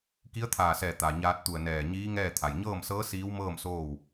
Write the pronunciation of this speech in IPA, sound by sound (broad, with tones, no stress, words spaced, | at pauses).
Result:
ki˧˥ə̯t̪ʰaː˧˩sɛː˧˩ t̪a˩ɲaː˧t̚t̪u˧˩ə̯ nɛː˧˩ɲiː˧˥ŋɛː˥˨ t̪ʰa˩jɲɤː˥˨msɤː˧˥ siː˧˥wmɤː˥˨m soː˥˨w